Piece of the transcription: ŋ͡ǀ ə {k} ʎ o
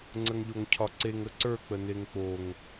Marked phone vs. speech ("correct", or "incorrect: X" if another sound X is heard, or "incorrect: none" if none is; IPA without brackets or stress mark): incorrect: ŋ